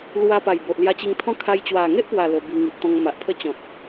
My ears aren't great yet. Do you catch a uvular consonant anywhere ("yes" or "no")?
no